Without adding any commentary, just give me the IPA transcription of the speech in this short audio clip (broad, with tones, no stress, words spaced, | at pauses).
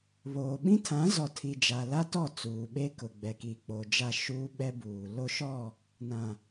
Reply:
βoː˨ ɓĩ˦tʰã˨˦zɔ˨tʰi˨ d͡ʒa˨la˦tɔ˦˨ t͡suː˨ɓe˦ kʊ˨ɡ͡bɛ˨ ki˨k͡po˨ d͡ʒa˦ʃuː˦ɓɛ˦ buː˨ lo˦ʃɔ˦˨ | nã˨